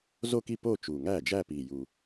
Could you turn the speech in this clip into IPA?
zo˥˧ki˥˧ po˥˧t͡ʃu˨˩ ŋæ˥˩ d͡ʒæ˥˧pi˨˩ju˨˩

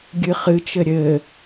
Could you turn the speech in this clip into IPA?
ɡʲɨχɨt͡ʃɘ ɾʲɘ

